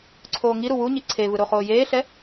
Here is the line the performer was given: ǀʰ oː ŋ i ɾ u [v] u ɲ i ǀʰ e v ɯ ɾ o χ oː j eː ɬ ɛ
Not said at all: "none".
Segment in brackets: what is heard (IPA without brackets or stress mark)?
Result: w